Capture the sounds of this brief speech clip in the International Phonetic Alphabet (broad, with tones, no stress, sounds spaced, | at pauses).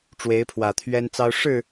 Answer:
ʈ͡ʂ w e˨˦ ɪ̯ pʰ w ä˨˩ t̪ʰ ɥ ɛ˦ n t͡s ɑ˦ ʊ̯ ʂ ɻ̩˥˨